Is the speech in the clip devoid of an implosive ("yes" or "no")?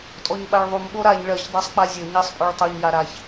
no